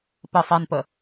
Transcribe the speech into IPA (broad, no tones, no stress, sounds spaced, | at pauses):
p ə sˤ ɛ n p ə